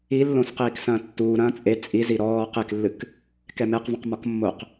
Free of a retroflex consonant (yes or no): yes